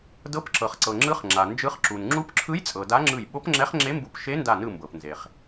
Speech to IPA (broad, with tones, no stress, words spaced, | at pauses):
dɤ˧˥pǁɤ˩χǀɤ˩ŋ͡ǁɯ˧˥χ ŋ͡ǁa˩ nd͡ʒɯ˧˥χǁu˩n ŋ͡ǁu˧˥pǁʰɯ˧˥jt͡sʼɤ˩ da˧˥ŋ͡ǁɯ˧˩j ɓo˧˥pŋ͡ǁɛ˧˥χŋ͡ǁe˧˥mbu˧˩p ʃe˧˥nda˧˩nɯ˧˩ mbɤ˩pnze˩χ